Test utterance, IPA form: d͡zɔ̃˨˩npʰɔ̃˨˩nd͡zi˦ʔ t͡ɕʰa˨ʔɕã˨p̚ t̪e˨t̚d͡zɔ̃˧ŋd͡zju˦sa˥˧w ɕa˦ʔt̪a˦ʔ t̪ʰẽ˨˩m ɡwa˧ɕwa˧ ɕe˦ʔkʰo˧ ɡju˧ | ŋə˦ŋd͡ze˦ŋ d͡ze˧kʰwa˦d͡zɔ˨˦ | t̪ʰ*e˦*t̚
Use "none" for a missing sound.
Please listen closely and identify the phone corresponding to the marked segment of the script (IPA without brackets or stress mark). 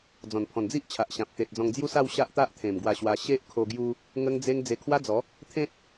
ẽ˦